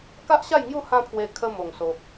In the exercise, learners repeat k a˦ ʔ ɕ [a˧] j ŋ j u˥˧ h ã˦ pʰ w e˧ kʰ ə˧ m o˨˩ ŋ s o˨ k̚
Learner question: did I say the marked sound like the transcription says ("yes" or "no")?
no